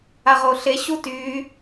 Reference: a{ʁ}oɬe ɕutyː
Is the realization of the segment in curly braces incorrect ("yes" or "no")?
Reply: no